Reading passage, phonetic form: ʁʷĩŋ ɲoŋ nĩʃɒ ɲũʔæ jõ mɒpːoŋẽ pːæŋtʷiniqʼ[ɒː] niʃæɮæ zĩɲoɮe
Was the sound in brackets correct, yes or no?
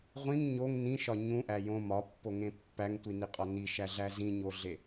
no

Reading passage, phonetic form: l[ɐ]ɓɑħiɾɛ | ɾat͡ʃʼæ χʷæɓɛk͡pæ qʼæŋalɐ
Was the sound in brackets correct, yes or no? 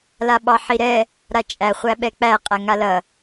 no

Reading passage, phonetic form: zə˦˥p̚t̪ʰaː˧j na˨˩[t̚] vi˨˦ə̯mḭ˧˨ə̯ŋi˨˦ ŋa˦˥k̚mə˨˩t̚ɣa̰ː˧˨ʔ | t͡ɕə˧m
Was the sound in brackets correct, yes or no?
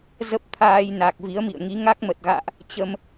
no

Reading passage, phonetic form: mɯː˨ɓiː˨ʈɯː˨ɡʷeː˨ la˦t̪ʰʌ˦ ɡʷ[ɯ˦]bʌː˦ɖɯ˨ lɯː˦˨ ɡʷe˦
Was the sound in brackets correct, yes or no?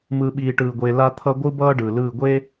yes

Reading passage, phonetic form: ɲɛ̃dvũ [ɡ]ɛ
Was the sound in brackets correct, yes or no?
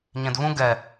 yes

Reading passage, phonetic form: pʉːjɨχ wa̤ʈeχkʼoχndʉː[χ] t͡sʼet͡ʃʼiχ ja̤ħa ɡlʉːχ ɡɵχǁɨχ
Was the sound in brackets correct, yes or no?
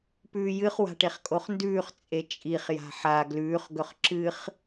yes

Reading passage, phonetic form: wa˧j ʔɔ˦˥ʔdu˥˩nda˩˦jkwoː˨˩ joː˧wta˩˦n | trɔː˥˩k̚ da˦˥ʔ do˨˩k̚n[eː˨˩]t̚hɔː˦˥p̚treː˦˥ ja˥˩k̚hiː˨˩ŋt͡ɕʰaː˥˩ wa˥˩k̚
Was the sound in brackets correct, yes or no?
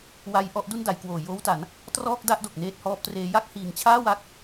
no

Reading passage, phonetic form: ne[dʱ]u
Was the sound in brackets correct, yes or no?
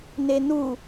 no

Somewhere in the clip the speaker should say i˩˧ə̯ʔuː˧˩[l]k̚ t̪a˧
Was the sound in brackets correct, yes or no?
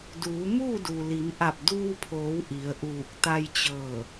no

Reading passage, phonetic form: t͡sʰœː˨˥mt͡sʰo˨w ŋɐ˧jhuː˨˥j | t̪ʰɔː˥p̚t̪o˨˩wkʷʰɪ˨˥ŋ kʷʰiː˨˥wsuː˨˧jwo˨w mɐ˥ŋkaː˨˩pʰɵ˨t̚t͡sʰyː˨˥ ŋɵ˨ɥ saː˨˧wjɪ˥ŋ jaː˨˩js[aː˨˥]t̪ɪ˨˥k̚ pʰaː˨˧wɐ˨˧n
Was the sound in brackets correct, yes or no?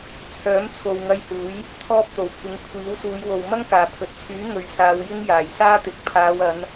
no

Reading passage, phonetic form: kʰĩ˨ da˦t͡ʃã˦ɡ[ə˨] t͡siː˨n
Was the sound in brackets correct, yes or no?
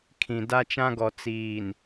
no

